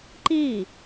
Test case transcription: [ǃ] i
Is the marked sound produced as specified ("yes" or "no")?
yes